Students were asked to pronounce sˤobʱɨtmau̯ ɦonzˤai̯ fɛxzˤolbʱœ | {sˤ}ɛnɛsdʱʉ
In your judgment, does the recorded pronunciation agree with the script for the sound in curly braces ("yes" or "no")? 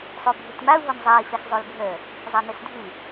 no